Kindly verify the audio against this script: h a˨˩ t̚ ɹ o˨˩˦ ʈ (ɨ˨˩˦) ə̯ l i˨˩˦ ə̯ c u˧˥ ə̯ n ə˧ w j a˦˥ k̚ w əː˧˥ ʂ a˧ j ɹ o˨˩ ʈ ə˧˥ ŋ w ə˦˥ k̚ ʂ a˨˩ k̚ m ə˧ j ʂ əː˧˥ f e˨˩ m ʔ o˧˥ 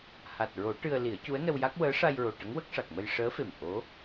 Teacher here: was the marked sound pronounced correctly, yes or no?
no